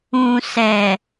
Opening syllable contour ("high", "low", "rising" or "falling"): low